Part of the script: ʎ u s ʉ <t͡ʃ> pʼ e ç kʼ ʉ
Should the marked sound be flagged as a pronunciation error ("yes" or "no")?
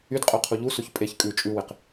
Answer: yes